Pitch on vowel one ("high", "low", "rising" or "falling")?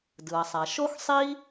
low